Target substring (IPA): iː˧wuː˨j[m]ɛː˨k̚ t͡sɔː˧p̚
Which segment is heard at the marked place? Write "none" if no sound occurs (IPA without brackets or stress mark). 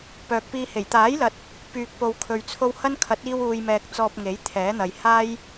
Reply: m